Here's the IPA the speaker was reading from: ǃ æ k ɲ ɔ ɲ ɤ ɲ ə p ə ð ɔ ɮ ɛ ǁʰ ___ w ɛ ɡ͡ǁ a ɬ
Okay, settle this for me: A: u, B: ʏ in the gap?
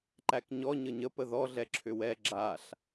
B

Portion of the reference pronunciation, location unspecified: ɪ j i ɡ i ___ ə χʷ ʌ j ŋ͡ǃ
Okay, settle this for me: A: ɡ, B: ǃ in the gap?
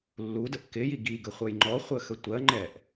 A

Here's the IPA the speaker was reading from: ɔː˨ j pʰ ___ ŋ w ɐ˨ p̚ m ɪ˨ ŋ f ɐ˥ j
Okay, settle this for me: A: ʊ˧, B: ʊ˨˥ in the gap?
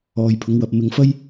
B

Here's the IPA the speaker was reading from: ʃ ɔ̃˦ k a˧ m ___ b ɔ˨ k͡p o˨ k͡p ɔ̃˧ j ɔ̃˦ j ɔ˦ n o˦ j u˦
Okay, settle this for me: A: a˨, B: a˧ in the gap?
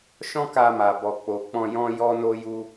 A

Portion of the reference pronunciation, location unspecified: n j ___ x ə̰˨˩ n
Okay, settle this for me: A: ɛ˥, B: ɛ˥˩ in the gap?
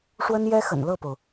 A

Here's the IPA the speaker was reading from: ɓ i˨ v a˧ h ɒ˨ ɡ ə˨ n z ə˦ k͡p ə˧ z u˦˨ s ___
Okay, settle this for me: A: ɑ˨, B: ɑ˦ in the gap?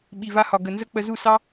B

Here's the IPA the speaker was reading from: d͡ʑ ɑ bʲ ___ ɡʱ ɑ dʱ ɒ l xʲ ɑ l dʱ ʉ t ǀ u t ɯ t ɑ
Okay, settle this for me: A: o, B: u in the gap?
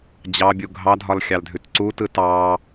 B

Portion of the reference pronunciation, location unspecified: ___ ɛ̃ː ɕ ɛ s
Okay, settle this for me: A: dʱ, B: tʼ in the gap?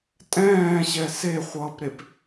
B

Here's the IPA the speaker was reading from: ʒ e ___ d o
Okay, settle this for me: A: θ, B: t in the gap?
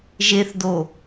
A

